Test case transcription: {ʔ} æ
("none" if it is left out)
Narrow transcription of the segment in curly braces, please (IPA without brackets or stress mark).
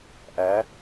ʔ